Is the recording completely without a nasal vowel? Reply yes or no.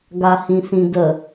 no